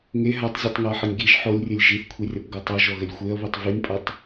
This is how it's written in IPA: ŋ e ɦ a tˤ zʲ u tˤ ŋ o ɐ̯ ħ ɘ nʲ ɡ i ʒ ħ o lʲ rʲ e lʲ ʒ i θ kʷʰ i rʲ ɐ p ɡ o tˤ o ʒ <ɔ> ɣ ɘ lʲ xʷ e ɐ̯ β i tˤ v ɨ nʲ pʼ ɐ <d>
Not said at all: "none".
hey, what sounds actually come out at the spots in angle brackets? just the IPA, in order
ɔ, tˤ

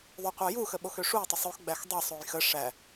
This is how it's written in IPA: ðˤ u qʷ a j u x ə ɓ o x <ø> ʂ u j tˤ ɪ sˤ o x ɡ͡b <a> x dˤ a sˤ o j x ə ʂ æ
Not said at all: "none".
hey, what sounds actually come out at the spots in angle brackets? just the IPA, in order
ø, æ

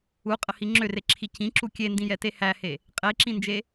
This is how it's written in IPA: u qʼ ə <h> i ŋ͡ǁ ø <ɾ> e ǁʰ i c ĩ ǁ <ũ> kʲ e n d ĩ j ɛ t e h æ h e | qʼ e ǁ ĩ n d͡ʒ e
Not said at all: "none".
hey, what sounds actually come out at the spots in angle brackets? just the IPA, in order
h, r, u

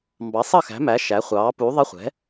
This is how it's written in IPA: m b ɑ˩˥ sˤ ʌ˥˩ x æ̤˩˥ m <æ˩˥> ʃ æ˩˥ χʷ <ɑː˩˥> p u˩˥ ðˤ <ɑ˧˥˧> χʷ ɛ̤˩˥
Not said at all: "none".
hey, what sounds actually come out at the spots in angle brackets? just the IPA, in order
æ˩˥, ɑː˩˥, ə˧˥˧

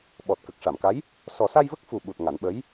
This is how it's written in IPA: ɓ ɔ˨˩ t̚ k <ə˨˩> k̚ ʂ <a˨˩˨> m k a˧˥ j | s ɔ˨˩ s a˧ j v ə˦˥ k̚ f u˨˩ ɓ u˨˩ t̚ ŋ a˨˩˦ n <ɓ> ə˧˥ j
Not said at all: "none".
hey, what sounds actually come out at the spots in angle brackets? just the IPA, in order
ə˨˩, a˨˩˨, ɓ

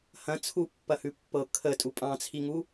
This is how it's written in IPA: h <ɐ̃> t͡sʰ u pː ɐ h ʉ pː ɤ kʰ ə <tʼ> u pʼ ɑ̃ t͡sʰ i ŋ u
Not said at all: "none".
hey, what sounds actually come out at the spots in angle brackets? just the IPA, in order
ɐ̃, tʼ

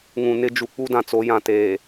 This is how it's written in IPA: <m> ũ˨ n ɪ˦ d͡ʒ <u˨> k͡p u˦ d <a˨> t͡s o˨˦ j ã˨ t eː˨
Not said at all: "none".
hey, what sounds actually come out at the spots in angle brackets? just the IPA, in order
ŋ, u˨, ã˨

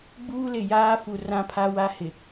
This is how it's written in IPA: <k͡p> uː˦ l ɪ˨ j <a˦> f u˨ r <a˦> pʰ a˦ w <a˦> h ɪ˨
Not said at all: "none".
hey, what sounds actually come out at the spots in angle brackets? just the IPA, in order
ɡ͡b, aː˦, ã˦, a˦

